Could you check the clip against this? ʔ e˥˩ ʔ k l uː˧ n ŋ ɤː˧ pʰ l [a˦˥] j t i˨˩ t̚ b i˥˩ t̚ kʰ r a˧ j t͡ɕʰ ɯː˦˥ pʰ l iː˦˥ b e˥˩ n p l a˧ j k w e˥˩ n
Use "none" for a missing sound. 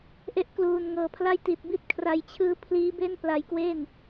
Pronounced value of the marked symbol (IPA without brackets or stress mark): a˥˩